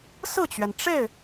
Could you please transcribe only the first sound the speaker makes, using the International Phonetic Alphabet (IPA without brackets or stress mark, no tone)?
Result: s